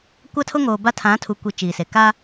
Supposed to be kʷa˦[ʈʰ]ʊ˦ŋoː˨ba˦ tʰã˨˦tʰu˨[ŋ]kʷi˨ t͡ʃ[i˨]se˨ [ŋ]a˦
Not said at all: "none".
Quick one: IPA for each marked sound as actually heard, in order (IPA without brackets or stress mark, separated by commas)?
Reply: tʰ, none, iː˨, k